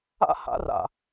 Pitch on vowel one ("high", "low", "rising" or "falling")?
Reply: high